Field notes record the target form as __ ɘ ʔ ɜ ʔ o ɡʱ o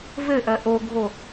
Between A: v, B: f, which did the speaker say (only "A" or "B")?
A